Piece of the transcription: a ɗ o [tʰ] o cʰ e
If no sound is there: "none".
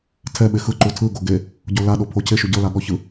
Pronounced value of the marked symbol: pʰ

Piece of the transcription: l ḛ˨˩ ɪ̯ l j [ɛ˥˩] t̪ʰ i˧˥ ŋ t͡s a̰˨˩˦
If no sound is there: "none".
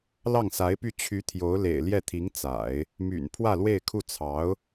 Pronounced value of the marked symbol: ɛ˥˩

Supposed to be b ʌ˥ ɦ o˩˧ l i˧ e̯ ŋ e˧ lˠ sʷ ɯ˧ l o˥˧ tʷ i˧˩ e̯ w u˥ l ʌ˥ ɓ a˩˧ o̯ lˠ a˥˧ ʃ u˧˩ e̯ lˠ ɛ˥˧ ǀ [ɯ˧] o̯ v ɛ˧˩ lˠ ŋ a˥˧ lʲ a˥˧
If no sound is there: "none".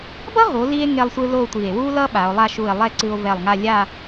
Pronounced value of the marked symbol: ɯ˧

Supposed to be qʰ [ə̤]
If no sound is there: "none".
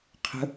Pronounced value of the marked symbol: ə̤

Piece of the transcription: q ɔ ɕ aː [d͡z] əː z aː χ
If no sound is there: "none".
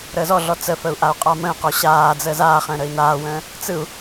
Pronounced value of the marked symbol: d͡z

